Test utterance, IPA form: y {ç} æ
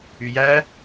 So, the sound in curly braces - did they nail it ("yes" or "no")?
no